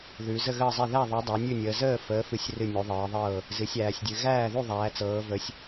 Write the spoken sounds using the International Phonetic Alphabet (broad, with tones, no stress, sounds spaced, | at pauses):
ð ʉ˨˦ z ə˥˨ ɣ əː˥˨ zˤ e˥˨ ð æ˥˨ ðˤ ʉ˨˦ dˤ æ˨˦ nʲ ʉ˥˨ nʲ əː˨˦ z əː˥˨ f əː˨˦ f ɨ˨˦ sʲ r ɨ˥˨ nʲ u˨˦ ðˤ ɤː˨˦ ðˤ ɤː˥˨ | z ɨ˨˦ sʲ æː˨˦ sʲ dʲ ɨ˨˦ ɣ æː˥˨ ð u˥˨ ðˤ æː˨˦ t͡s ɤː˨˦ v ə˨˦ sʲ